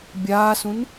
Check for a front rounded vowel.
absent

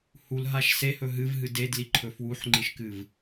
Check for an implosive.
absent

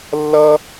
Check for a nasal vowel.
absent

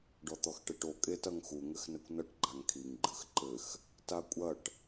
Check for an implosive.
absent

